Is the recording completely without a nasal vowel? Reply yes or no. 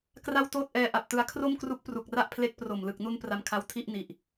yes